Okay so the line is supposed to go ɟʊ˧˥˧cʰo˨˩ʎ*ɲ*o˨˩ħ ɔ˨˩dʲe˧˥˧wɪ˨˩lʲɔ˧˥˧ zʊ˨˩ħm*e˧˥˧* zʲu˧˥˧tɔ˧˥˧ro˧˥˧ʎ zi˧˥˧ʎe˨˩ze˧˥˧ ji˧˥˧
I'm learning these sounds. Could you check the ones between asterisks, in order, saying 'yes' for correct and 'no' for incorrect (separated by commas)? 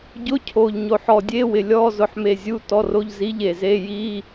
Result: yes, no